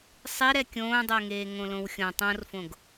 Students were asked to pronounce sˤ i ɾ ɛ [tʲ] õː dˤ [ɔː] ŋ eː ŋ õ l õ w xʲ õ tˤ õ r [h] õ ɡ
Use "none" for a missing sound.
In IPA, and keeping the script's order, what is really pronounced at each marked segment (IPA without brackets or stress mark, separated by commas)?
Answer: kʲ, əː, f